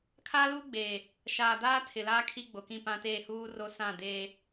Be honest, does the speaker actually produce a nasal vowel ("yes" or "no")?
yes